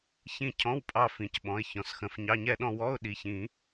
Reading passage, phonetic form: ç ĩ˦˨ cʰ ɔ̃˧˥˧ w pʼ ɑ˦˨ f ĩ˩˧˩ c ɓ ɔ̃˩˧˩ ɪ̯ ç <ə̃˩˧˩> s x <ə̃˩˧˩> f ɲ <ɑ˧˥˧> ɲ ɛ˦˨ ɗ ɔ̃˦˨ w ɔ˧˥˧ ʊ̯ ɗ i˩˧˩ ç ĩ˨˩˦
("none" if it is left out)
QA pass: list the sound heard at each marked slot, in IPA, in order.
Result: ɔ̃˩˧˩, ə̃˩˧˩, ɑ˧˥˧

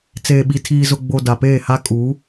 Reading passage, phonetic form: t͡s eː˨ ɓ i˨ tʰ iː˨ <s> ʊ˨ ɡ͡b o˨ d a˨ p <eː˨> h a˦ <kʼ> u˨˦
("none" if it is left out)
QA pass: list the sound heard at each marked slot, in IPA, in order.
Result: z, eː˦˨, kʼ

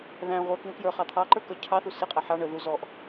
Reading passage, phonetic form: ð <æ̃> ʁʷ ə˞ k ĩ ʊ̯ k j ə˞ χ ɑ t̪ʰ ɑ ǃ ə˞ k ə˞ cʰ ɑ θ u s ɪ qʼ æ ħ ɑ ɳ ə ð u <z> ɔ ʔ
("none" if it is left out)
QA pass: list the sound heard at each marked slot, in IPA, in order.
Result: æ̃, z

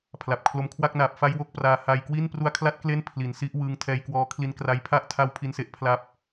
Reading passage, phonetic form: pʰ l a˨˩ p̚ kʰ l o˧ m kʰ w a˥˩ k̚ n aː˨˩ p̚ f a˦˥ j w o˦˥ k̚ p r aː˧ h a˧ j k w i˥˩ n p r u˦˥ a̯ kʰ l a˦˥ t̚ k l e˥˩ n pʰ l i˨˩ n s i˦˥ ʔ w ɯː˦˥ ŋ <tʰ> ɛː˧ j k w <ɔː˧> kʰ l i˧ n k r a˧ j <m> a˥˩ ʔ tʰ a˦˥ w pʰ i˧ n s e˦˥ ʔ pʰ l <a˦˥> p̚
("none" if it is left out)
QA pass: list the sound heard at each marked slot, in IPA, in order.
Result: tʰ, ɔː˧, pʰ, a˦˥

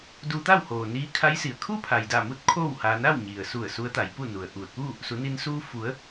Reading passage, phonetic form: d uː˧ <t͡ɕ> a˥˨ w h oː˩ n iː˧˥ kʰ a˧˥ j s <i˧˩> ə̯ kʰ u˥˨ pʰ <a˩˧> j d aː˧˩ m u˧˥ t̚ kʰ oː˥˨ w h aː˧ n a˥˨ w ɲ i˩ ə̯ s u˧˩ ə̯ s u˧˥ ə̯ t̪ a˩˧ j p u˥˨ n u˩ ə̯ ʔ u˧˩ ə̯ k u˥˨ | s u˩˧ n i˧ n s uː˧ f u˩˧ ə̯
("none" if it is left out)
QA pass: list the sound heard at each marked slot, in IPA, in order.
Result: t̪, i˩, a˩

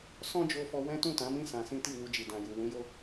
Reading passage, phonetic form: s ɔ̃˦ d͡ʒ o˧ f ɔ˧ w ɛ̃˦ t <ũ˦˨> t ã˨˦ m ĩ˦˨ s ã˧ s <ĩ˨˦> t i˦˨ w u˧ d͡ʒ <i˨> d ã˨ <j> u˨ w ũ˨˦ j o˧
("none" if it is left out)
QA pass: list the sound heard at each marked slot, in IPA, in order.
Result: ũ˦˨, ĩ˦, i˨, j

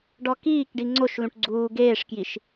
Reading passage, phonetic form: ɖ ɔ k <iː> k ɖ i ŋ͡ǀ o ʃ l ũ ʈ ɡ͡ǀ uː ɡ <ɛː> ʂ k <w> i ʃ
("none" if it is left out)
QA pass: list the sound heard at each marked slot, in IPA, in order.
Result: iː, eː, j

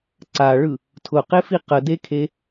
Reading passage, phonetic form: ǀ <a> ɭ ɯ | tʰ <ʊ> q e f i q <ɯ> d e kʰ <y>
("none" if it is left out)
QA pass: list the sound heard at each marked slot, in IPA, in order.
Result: a, ʊ, ə, e

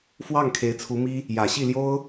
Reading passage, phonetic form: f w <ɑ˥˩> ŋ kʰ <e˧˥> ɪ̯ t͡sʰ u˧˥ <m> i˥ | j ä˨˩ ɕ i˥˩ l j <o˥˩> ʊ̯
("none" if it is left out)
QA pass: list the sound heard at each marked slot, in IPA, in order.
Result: ɑ˥˩, e˧˥, m, o˥

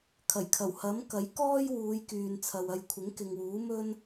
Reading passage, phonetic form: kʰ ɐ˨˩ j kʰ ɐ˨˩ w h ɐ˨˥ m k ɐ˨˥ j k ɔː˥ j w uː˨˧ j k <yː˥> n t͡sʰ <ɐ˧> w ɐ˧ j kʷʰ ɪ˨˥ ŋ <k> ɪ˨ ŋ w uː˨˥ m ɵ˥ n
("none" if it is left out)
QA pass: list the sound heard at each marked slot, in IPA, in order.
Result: yː˨, ɐ˨, k

